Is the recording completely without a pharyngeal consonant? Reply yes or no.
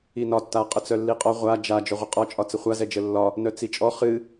yes